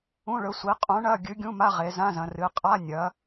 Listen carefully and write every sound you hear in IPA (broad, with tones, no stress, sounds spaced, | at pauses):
ũ˧˥˧ ɭ ɵ˨˥ sʷ i˨˥ qʼ ũ˨˥ ɳ ɐ˧˥˧ ɡʲ ɨ˨˥ ɡʲ ũ˧˥˧ m a˧˥˧ ʁ e˩˧ z ã˧˥˧ z ɐ̃˩˧ r ɨ˩˧ qʼ a˧˥˧ nʲ ɐ˩˧